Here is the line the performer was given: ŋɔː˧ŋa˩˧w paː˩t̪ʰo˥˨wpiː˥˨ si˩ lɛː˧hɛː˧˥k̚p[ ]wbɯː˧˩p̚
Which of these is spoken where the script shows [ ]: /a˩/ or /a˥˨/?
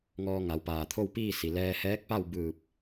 a˥˨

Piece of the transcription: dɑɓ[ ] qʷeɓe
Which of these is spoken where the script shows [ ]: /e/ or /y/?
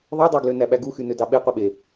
e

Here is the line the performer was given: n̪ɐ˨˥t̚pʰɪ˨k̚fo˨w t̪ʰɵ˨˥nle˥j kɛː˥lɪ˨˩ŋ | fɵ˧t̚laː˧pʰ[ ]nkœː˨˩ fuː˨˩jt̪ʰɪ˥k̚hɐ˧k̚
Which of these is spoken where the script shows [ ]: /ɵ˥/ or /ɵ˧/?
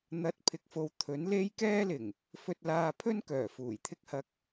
ɵ˥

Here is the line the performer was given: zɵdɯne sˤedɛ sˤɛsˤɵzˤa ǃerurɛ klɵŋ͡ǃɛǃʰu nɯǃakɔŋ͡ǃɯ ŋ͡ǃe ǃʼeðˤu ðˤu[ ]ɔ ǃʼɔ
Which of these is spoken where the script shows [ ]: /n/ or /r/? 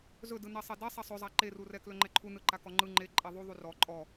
r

